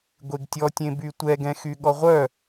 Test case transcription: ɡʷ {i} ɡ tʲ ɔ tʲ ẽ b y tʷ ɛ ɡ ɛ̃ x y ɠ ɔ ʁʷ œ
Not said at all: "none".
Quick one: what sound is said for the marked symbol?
e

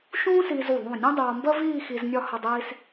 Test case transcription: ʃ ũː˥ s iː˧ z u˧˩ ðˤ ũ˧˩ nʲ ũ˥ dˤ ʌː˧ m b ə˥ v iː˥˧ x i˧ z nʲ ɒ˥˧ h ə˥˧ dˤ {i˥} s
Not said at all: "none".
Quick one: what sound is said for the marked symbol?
iː˥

